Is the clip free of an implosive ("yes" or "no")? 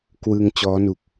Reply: yes